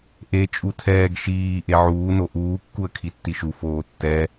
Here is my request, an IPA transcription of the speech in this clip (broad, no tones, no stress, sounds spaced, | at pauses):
ʔ e t͡ʃʼ u tʰ ɛː ɡ ʃ iː ʔ e ʕ uː n o ʔ uː kː u ə̯ kʰ i tː i ʃ u f oː tː ɛ